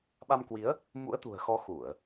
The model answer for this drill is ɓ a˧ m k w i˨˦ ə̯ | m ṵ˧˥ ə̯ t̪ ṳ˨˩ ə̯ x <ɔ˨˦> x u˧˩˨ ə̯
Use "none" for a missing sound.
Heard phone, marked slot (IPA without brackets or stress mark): ɔ˨˦